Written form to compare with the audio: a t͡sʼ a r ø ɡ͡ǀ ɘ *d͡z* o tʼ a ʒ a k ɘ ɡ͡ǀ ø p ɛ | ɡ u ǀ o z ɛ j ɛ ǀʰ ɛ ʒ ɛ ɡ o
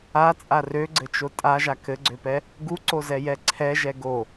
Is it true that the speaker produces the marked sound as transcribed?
no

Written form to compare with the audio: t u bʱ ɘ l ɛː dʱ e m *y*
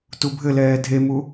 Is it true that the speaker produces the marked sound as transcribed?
no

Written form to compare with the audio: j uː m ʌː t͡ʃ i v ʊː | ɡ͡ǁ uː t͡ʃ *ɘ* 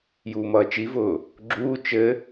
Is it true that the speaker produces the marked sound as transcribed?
yes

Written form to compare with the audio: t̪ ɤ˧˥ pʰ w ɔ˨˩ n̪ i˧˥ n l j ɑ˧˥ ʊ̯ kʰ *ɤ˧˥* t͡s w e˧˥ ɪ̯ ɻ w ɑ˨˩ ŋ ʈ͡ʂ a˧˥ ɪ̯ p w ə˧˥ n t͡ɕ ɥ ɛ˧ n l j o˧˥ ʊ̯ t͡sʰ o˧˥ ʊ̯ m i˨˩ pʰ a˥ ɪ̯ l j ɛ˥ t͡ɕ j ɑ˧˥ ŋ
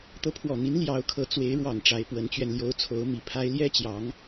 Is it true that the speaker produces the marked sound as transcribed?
yes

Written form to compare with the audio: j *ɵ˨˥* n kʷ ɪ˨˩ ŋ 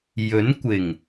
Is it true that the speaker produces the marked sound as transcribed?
yes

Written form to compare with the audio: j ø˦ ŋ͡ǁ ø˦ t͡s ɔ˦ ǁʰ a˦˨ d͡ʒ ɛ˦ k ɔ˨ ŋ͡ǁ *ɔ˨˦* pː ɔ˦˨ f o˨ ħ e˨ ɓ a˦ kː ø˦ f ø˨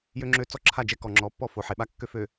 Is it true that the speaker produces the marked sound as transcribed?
yes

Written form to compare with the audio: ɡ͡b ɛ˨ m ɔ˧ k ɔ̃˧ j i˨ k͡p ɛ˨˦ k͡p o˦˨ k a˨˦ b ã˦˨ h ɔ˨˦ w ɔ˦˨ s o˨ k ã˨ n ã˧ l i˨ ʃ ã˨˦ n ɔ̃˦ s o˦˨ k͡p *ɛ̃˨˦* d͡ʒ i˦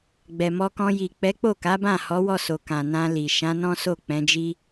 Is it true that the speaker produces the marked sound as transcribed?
yes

